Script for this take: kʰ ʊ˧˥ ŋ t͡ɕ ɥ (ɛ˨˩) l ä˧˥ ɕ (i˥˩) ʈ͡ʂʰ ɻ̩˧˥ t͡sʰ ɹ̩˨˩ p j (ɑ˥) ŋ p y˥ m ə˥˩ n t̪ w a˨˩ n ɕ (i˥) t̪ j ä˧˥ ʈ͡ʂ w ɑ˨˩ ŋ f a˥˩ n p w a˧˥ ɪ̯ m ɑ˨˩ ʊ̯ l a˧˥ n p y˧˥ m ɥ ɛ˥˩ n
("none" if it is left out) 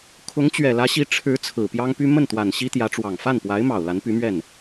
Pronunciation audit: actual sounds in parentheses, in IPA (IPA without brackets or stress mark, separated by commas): ɛ˨˩, i˧˥, ɑ˥, i˥